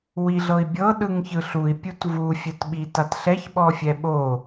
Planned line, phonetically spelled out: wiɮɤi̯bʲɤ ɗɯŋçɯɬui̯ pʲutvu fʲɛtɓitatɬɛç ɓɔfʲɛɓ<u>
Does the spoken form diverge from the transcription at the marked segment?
yes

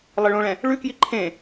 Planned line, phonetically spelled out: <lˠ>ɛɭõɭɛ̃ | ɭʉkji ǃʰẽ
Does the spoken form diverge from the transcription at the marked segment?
no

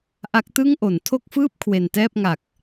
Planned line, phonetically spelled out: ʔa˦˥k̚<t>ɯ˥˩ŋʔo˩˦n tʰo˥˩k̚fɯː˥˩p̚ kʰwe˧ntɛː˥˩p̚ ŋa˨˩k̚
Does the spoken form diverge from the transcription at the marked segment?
no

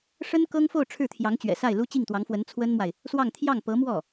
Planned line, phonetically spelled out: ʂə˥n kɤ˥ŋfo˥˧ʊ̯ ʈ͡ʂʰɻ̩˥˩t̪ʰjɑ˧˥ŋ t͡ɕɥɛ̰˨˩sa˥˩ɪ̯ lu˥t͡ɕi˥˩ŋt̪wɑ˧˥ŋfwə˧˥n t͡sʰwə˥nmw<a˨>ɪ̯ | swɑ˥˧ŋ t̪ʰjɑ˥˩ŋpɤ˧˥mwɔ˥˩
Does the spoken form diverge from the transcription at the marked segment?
no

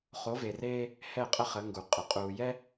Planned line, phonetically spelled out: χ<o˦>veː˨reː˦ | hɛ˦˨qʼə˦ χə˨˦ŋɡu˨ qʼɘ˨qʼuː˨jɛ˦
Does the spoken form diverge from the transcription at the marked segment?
yes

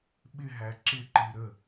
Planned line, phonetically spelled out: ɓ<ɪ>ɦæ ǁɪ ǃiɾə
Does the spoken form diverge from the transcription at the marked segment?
no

